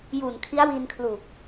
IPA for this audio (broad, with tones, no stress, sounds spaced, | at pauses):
j u˨˩ n kʰ i˦˥ a̯ w i˧ n kʰ l u˨˩ k̚